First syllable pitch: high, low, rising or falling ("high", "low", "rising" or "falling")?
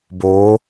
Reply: rising